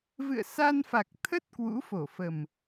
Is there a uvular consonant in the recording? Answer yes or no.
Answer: no